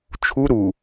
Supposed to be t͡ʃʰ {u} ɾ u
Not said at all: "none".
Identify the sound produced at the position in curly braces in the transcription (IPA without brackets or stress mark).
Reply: u